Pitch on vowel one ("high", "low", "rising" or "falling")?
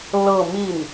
falling